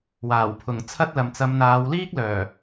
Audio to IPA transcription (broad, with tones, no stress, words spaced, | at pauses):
waː˨˩wpʰʊ˨˩ŋ t͡sʰɐ˥t̚lɐ˨m t͡sɐ˨˧mn̪aː˨˧wliː˥k̚ lœː˨˩